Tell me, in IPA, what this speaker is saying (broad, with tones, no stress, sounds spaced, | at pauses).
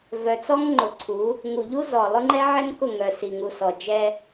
v œ˨ t͡s ɔ˦ ŋ ŋ͡ǃ ʊ˨ ǀʰ u˨˦ | ŋ u˨ ʎ u˦ z ɔ˨ lˠ ʊ˦ ŋ͡ǃ ɛ˦ ʕ ɛ˦ ŋ k ʊ˦˨ ŋ œ˨ s i˨ ŋ u˨ s ɔ˨ d͡ʒ ɛ˦